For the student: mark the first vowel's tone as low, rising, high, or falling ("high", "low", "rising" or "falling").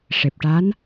low